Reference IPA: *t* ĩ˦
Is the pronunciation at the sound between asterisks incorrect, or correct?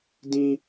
incorrect